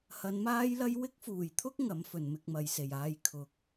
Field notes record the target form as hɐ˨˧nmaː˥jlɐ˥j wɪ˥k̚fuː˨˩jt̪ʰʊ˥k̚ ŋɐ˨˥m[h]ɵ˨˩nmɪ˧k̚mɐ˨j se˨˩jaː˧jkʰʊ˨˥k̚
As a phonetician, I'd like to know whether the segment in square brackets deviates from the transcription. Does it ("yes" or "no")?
yes